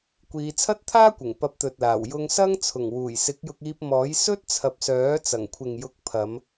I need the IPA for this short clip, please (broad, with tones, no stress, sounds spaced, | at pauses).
kʷ iː˨˧ t͡sʰ ɐ˥ t̚ t̪ʰ aː˥ kʷ ɪ˨˩ ŋ p ɐ˧ p̚ t̪ ɵ˨ t̚ l aː˨˩ w j ʊ˧ ŋ s ɐ˥ ŋ t͡sʰ ʊ˨˩ ŋ w uː˨˩ j s ɪ˨˥ k̚ j ʊ˧ k̚ iː˧ p̚ m ɔː˨˥ j s ɵ˥ t̚ t͡sʰ ɐ˨ p̚ s œː˨˥ t͡s ɐ˨˩ ŋ kʷʰ ɪ˨ ŋ j ʊ˨˥ k̚ pʰ ɐ˨˧ m